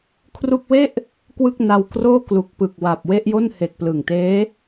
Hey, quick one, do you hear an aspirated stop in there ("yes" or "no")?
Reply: yes